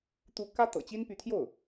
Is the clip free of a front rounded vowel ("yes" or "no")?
no